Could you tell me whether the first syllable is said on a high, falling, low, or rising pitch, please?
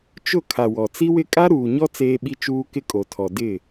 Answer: falling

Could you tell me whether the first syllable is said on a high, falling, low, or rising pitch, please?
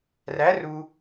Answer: rising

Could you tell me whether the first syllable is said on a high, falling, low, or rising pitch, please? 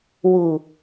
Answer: low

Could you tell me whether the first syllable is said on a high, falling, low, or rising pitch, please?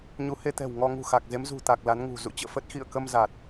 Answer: rising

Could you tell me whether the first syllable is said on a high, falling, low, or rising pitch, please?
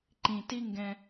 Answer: low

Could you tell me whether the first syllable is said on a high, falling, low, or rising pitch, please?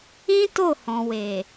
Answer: high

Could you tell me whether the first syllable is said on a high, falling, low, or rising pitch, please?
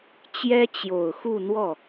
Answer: high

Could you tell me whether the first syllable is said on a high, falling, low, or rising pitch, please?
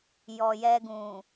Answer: low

